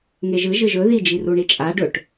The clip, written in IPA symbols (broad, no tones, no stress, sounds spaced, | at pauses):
ŋ e ʒ ɯ ʒ ɯ ʒ ɵ ð i d͡ʒ i r u ɳ i t͡ʃʼ a ɖ ɵ ʈ